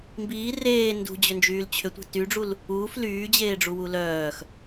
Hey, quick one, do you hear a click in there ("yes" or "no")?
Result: no